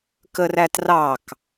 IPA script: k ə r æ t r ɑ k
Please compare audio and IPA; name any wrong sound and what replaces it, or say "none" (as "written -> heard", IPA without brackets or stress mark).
none